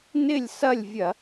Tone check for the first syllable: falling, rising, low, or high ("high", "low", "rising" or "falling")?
falling